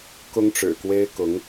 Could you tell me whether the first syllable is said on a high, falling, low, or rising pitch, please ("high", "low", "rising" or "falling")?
high